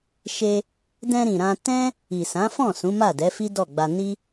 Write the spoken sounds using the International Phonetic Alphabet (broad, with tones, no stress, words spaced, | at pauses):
ʃe˧ | dɛ̃˧ɾĩ˨ ɾã˧ tɛ̃˦ | i˨sã˨˦fɔ̃˦˨ sũ˨˦ma˦˨dɛ˨˦fi˦ dɔ˦˨ɡ͡ba˧ ni˦